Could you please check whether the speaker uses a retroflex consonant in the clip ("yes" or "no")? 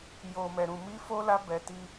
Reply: no